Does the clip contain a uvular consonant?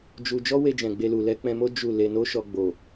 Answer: no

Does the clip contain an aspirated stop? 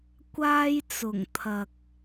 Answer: yes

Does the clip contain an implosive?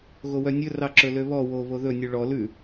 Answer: no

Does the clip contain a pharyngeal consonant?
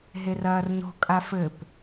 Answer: no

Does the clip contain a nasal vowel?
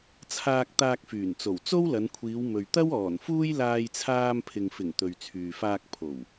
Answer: no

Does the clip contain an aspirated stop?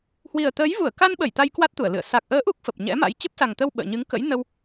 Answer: no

